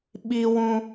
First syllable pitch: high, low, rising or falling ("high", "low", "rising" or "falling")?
high